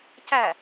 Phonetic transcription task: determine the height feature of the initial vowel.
low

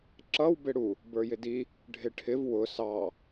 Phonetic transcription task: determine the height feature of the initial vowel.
mid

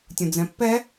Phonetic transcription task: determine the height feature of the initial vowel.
high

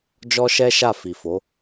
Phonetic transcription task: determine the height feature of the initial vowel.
mid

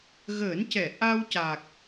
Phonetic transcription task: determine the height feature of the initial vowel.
mid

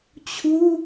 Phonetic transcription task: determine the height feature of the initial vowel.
high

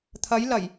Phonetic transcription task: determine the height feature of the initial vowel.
low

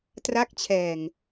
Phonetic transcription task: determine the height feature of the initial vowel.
low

